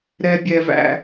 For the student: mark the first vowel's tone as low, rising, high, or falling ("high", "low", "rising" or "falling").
high